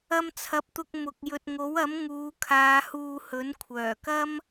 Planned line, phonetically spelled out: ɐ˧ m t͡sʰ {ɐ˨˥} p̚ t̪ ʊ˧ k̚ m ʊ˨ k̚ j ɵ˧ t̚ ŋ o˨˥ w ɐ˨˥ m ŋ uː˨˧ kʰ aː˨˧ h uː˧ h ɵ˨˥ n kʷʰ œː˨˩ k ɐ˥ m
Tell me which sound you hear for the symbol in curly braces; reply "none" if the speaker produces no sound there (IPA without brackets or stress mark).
ɐ˨˥